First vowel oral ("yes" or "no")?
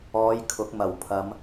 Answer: yes